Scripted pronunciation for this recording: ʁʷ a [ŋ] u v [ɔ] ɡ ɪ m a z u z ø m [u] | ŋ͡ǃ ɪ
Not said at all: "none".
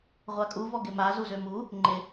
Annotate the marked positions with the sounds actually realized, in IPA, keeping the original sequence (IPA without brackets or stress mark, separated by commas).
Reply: kʼ, ɔ, u